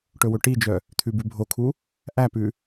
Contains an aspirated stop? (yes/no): yes